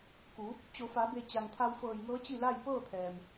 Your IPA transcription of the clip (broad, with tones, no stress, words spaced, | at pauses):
ku˩˧ | t͡ɕo˩˧fa˩˧be˧˩ t͡ɕa˩ŋt̪ʰa˧wfɤː˧˩jŋɤː˧˥ t͡ɕi˥˨la˥˨j pɤː˥˨t̪ʰɛː˩m